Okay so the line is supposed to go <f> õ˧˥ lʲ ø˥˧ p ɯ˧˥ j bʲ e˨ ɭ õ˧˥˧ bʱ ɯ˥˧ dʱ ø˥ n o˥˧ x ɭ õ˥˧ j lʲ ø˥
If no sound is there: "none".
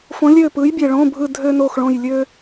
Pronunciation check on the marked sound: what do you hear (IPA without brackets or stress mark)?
f